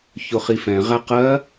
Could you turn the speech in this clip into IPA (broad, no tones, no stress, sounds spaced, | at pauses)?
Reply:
ç ʊ χ i f ɛ̃ ʁ æ q ɜ